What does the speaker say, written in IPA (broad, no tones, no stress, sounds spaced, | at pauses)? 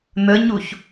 n̪ ə ɲ u ç